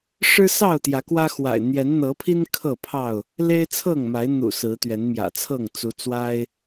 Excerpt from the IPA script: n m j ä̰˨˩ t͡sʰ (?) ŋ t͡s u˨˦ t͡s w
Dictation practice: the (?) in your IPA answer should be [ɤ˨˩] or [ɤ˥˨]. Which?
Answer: ɤ˥˨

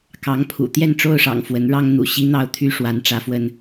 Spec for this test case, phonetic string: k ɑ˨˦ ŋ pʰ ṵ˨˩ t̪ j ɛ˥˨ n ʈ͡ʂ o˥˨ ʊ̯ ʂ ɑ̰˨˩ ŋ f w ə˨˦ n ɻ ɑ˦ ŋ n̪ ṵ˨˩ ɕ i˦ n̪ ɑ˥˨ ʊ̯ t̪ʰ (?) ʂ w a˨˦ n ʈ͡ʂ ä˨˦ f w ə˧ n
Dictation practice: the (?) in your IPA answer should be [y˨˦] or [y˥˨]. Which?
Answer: y˥˨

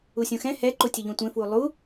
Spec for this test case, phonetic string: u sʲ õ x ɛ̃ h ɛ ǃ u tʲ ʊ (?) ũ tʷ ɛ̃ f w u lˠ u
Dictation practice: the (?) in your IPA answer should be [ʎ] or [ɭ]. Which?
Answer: ʎ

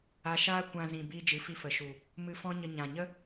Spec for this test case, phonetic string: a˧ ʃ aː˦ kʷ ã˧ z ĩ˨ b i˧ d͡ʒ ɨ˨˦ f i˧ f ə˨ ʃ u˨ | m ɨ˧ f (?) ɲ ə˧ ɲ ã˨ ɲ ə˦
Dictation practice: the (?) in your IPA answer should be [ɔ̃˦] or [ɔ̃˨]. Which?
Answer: ɔ̃˦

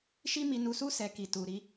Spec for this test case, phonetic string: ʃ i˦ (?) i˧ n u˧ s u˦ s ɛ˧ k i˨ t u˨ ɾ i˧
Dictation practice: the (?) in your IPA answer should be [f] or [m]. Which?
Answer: m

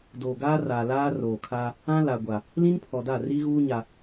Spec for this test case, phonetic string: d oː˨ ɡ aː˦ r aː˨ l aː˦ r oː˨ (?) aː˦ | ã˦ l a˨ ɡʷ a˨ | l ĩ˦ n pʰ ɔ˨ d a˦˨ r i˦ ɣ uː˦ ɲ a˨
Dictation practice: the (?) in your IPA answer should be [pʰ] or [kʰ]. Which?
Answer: kʰ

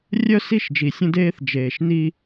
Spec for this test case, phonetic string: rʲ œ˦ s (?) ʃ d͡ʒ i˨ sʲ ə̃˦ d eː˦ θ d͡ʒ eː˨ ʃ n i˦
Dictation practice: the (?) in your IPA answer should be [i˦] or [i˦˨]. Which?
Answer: i˦˨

